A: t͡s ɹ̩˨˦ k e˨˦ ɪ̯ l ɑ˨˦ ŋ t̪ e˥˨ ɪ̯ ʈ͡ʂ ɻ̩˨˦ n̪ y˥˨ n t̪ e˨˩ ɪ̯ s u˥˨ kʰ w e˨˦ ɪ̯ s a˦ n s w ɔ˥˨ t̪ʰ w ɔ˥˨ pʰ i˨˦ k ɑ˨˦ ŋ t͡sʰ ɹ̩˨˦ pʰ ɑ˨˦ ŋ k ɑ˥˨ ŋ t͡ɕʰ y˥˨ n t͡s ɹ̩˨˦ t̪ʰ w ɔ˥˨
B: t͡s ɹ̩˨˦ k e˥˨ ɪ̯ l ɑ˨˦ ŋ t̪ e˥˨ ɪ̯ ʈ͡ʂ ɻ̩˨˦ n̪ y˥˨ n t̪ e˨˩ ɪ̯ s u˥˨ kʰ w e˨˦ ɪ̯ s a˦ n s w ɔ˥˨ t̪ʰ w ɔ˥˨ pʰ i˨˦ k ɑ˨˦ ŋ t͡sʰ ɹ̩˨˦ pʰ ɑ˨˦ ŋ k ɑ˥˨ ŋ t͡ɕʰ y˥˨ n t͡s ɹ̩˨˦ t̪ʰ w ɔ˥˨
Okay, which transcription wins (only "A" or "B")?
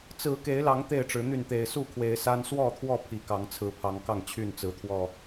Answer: A